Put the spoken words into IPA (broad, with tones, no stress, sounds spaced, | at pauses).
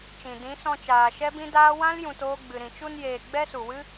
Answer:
t͡ʃ ĩ˨ d ĩ˨˦ s ɔ̃˧ t͡ʃ aː˨ ʃ ɛ˦ b ĩ˦ d aː˦ w ã˦ l j ũ˨ t oː˧ ɡ͡b ɨ˨ ɾ ĩ˨ t͡ʃ u˧ n j eː˨ ɡ͡b ɛ˦ s u˨ w ɨ˦